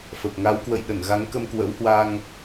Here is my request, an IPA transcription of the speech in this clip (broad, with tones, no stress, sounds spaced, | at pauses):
f ə˨˩ p̚ ŋ a˨˦ w k w ə̰˧˨ j ɗ ə˧˩ n ɣ a˨˦ ŋ k ə˧ m k w ə̰˧˥ w h w a˧ ŋ